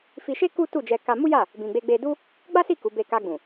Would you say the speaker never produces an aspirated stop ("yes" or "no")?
yes